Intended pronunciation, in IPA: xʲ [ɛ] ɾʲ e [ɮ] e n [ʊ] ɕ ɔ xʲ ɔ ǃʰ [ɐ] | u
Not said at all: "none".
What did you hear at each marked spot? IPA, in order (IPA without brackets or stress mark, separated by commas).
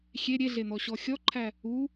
e, ɮ, ɔ, æ